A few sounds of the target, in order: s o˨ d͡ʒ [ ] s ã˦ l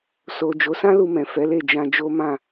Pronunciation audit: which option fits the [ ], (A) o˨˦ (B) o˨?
A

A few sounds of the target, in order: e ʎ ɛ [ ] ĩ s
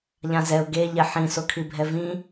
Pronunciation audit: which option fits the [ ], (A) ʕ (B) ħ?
B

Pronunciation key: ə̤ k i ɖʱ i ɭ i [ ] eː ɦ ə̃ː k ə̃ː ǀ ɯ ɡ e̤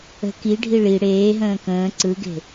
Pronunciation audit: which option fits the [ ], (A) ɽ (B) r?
A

